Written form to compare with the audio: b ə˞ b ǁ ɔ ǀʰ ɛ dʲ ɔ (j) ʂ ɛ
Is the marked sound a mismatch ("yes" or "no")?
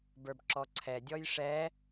no